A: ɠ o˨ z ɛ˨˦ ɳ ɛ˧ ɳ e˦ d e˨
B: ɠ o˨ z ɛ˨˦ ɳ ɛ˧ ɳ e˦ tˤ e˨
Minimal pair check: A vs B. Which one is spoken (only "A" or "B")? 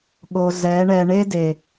A